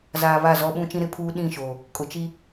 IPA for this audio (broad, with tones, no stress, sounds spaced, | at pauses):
z aː˨ β a˦˨ z ɔ˦ ɓ ũ˦ t͡ʃ ĩ˦ ɾ ɪ˦ pʰ uː˦ ɗ ĩ˦˨ ʃ oː˨ | kʼ ʊ˨ t͡ʃ i˦